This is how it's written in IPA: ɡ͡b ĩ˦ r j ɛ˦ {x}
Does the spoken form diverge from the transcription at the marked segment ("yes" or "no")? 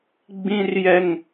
yes